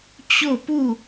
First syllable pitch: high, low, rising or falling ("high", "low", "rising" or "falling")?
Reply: falling